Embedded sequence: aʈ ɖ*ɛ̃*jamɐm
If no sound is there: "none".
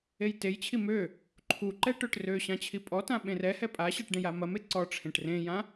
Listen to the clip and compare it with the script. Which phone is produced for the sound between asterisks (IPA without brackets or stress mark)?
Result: ẽ